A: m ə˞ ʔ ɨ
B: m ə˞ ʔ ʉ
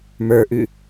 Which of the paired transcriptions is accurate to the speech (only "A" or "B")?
B